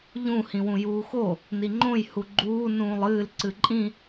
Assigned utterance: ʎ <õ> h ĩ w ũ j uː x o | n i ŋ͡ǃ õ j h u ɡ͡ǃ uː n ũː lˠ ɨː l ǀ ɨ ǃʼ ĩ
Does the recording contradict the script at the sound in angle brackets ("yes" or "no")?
yes